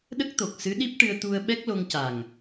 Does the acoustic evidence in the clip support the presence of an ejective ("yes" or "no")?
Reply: no